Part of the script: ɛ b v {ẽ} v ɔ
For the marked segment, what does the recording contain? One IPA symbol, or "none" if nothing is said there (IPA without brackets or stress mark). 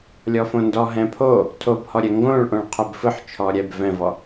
ɛ̃